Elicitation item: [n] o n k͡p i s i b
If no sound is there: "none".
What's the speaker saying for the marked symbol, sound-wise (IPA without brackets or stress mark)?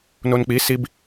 n